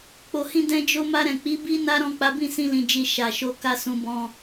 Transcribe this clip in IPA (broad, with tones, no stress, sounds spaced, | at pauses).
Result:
k͡p o˨ h ĩ˧ d ɛ̃˦ d͡ʒ o˦ m a˧ ɾ ɛ̃˨ k͡p i˨˦ b i˦ n a˦ ɾ ɔ̃˦˨ k͡p a˨˦ b ĩ˦˨ s ĩ˧ l ĩ˨ d͡ʒ i˨ ʃ a˨ ʃ o˧ k a˧ s ũ˧ b ɔ̃˧